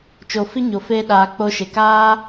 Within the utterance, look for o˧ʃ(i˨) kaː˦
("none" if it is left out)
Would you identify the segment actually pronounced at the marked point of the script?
e˨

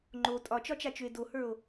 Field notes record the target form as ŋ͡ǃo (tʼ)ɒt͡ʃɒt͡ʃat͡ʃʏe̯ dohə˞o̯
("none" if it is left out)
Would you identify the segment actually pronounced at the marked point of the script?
tʼ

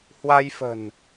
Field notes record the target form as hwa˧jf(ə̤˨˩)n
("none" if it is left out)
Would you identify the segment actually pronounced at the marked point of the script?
ə̤˨˩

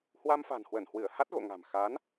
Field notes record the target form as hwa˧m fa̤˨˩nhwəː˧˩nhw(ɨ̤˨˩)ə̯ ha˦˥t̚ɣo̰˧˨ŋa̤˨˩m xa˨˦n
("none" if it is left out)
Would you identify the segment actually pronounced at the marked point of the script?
ɨ˧˩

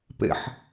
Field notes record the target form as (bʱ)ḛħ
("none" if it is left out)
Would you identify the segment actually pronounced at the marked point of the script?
p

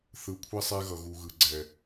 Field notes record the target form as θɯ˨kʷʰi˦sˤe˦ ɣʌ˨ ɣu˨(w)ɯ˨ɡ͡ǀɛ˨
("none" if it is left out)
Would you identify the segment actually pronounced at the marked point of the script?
ɣ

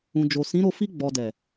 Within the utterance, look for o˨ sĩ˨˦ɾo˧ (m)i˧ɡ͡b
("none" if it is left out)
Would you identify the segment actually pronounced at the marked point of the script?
f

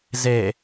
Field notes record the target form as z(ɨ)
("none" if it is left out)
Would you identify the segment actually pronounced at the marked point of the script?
e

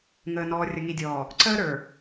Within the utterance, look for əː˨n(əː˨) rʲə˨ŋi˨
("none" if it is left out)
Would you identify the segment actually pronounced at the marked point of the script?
ɔː˨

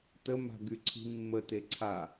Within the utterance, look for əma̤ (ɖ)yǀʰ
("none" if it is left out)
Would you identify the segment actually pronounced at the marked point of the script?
ɡ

